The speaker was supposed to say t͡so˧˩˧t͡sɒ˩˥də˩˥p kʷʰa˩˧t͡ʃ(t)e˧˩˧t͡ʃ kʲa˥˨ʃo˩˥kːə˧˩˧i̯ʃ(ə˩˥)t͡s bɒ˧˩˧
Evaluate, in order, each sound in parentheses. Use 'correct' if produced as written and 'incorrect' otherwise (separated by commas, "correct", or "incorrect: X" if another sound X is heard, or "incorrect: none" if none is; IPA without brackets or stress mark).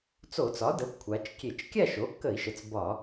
incorrect: kʲ, correct